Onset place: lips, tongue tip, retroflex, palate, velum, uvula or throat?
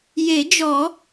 palate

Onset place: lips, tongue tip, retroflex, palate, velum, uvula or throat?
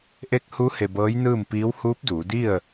throat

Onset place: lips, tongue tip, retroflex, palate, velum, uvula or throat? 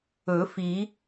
lips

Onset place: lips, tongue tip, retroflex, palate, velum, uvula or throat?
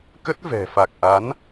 velum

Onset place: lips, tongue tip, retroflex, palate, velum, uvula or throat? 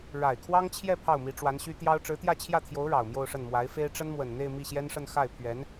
retroflex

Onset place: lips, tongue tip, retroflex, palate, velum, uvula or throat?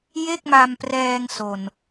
palate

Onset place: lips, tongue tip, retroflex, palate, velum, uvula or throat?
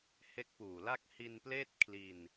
throat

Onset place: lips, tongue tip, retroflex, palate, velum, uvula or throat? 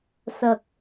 tongue tip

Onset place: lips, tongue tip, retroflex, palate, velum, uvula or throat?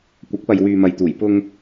velum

